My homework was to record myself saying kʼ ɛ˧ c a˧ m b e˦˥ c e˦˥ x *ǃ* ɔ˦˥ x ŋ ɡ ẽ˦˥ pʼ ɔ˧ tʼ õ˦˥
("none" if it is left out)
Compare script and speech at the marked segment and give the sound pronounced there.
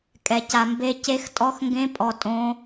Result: tʼ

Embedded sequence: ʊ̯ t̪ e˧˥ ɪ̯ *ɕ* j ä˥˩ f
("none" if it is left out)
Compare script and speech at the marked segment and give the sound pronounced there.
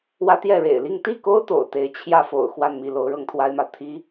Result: t͡ɕʰ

